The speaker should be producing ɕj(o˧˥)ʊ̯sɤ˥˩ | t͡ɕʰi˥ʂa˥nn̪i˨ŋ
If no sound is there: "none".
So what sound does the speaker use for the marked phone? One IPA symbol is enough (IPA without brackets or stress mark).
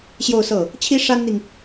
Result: o˥˧